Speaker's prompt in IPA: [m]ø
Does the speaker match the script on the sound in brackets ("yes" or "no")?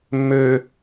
no